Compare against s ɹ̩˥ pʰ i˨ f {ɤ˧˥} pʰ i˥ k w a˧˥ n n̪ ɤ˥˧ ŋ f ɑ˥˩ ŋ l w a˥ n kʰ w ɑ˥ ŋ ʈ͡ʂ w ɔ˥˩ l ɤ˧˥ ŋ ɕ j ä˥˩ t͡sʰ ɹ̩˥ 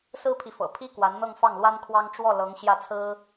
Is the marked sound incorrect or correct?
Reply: incorrect